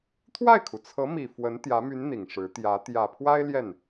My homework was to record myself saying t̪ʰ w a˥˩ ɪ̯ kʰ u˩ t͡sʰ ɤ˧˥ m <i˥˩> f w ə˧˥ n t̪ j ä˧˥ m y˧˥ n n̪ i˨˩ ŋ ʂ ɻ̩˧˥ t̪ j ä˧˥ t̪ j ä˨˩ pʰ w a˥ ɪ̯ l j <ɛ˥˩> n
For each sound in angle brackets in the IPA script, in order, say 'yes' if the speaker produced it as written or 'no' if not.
no, yes

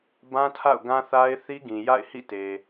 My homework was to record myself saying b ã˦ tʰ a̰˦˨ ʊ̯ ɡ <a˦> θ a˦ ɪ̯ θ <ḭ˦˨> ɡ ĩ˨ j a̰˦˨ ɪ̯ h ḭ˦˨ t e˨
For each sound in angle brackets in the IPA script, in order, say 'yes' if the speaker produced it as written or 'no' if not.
no, no

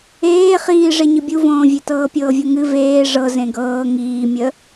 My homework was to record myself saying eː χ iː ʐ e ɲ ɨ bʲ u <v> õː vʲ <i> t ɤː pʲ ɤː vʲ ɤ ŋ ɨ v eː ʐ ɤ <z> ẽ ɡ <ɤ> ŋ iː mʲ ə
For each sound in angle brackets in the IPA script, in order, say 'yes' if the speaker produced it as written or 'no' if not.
yes, no, yes, no

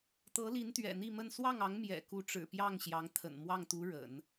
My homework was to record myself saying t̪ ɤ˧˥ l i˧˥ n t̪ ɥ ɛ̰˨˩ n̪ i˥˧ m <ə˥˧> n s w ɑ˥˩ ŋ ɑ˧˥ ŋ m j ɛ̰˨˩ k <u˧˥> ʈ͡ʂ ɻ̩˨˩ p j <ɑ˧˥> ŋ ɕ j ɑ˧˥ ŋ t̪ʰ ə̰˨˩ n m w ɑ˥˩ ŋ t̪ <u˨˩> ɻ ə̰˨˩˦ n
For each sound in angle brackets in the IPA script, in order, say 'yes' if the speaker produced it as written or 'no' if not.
yes, yes, no, no

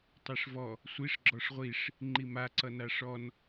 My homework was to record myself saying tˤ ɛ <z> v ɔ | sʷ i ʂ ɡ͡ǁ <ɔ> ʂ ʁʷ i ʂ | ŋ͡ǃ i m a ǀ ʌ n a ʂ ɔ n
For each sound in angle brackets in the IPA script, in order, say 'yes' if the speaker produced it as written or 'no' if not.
no, yes

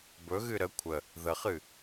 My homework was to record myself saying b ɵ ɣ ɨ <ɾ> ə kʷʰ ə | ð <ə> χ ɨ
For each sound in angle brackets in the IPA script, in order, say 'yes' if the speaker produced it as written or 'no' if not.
yes, yes

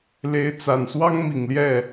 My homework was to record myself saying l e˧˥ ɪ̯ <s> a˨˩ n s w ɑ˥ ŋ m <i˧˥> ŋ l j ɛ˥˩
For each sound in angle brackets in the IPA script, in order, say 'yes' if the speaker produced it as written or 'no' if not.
no, no

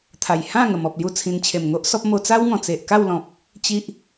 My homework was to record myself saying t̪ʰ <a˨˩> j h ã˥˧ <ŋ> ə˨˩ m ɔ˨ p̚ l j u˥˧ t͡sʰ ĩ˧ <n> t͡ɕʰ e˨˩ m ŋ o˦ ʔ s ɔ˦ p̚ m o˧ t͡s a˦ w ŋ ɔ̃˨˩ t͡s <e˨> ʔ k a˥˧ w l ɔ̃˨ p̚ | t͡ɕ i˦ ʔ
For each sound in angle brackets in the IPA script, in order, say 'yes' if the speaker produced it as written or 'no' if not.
yes, yes, yes, yes

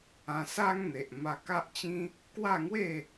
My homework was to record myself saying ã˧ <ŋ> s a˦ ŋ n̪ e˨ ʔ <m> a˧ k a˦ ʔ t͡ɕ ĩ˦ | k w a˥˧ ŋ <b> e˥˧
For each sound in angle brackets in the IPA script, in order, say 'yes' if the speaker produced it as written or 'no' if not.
no, yes, no

